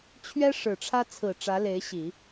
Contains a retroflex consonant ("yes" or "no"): yes